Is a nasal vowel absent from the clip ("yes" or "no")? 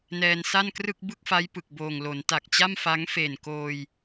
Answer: yes